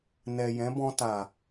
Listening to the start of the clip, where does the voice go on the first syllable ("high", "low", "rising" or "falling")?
low